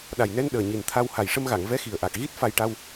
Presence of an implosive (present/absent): present